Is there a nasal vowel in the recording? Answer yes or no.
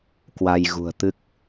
no